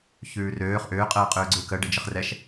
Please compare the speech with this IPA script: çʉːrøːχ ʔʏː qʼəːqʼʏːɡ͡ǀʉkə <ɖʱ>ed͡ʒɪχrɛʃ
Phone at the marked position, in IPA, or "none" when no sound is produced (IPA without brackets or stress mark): ɖ